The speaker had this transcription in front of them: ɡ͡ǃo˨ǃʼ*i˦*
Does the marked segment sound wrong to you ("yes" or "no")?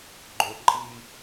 no